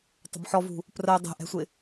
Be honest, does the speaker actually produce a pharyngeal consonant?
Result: yes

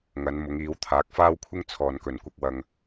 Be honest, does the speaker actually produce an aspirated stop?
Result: yes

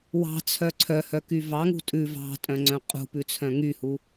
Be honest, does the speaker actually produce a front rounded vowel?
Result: yes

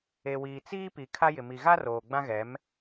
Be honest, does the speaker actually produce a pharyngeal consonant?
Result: no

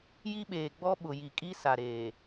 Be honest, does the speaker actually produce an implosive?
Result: yes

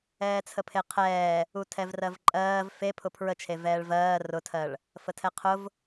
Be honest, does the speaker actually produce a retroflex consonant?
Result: yes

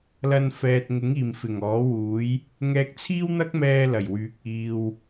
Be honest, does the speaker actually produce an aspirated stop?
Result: yes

